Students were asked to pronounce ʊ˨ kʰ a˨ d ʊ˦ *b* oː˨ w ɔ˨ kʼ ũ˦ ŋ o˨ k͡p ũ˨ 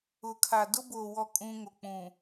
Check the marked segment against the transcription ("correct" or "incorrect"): correct